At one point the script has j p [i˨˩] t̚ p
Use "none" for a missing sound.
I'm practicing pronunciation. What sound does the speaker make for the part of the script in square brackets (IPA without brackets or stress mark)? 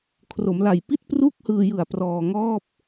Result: i˥˩